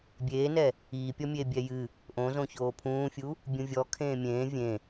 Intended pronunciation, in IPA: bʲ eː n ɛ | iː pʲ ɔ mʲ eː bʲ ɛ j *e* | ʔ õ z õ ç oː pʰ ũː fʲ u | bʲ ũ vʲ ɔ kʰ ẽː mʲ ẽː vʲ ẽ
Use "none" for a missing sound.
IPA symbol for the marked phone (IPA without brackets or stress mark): ɨ